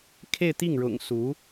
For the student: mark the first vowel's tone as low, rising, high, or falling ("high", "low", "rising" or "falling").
falling